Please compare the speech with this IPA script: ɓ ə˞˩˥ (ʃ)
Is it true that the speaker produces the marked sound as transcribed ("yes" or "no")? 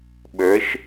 yes